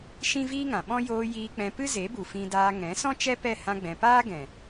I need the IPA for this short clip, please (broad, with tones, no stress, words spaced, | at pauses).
ʃĩ˦viː˦ŋã˨ɓɔ̃˦ joː˧ jiː˧k͡pɛ̃˧ pɨ˦ze˨˦bu˨ fĩ˧daː˧ ŋɛ̃˨˦sɔ̃˦ t͡ʃɛ˦pɛ˦˨hã˧ɡ͡bɛ̃˨ paː˦ɡɛ̃˨